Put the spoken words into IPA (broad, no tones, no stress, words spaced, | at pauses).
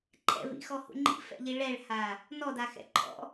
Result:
ǃʰɛ̰vḭxɔhṵ ŋ͡ǃḭfɛ̰ʎi ɭɛɭha | nɔdaxɛ̰ ǃʰɔ̰